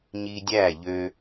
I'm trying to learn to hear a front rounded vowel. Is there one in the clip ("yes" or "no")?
yes